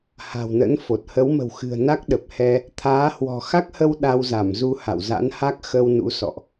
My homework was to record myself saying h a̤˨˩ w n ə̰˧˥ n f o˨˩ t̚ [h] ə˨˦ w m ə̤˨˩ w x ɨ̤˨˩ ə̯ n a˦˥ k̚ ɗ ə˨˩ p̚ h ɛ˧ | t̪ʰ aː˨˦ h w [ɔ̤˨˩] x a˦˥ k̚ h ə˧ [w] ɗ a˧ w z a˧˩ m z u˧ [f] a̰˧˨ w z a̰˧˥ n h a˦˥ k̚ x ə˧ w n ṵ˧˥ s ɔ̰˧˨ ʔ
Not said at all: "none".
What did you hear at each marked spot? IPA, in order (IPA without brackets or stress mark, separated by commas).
h, ɔ̤˨˩, w, h